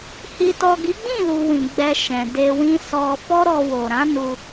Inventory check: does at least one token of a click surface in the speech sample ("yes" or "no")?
no